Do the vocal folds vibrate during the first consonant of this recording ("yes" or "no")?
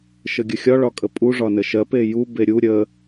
no